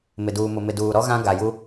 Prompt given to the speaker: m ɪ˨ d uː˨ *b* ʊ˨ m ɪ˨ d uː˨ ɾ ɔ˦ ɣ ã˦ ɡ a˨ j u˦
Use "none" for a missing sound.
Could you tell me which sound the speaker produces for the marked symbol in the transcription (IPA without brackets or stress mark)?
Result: m